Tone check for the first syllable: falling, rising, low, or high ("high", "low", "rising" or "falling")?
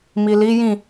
low